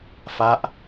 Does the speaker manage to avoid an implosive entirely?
yes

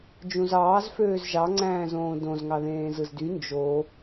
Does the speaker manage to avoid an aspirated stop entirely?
yes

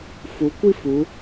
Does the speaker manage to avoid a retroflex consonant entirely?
yes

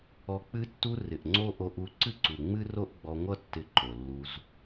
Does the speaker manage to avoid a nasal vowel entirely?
yes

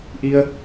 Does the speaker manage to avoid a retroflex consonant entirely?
yes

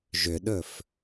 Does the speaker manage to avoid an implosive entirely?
no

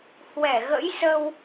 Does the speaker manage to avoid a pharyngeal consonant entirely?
yes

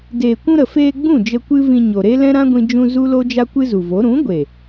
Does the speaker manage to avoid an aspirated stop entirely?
yes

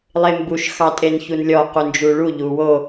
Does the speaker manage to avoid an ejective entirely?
no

